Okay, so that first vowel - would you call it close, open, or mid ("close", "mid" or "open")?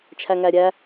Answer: open